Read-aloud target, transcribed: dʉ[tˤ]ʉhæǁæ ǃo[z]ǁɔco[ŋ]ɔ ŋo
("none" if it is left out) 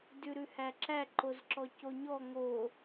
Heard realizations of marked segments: ɾ, z, ɲ

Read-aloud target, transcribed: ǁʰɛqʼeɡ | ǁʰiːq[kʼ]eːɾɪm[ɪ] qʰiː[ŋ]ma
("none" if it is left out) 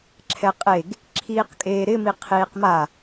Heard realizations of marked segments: kʼ, i, q

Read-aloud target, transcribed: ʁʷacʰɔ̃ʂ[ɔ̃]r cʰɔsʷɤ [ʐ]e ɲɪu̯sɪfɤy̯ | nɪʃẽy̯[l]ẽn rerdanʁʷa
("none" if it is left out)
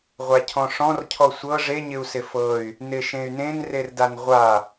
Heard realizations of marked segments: ɔ̃, ʐ, n

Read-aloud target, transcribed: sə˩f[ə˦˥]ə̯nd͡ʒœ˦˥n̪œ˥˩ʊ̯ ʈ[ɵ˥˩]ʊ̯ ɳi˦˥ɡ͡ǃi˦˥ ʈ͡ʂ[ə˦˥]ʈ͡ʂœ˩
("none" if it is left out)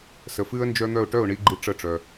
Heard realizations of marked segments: ɨ˦˥, œ˥˩, ə˦˥

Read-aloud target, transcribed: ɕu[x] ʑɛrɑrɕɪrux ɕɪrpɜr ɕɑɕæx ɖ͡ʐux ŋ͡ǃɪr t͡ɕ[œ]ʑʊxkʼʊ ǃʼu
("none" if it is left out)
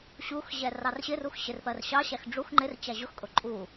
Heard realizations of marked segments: x, æ

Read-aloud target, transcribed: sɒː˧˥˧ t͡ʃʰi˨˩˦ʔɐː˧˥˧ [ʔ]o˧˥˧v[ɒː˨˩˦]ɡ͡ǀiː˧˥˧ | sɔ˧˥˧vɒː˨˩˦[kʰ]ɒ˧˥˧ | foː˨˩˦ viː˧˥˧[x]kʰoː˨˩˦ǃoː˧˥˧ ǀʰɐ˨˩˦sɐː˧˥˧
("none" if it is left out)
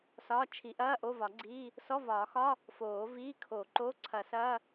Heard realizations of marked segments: ʔ, ɒ˨˩˦, x, none

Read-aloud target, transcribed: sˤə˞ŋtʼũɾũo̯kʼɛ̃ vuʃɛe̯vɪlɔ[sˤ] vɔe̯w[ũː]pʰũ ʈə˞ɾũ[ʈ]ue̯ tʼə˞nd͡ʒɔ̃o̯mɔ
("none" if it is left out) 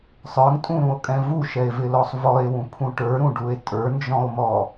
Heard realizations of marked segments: sˤ, ũ, ɖ

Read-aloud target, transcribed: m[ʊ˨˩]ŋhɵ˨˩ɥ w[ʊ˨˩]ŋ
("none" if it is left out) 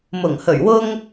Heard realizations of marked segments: ʊ˨˩, ʊ˧

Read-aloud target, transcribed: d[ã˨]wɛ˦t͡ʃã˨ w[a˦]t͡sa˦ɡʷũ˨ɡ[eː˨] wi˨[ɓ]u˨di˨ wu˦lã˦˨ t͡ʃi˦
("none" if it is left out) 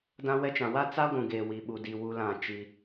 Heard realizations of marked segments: ã˦, a˦, eː˨, ɓ

